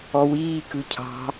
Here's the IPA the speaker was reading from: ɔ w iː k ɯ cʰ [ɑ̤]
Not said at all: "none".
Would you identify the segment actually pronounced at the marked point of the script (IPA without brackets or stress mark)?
ɑ̤